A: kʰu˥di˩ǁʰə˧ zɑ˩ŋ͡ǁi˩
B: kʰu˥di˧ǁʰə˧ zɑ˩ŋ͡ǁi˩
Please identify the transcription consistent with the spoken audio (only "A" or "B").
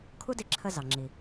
B